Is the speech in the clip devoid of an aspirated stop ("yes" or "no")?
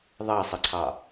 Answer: no